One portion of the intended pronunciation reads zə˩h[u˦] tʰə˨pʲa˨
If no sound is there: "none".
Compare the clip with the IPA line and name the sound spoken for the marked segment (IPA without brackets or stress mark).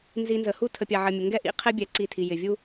u˦